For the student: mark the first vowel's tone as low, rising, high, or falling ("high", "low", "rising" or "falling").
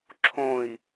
low